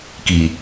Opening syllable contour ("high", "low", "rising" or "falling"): low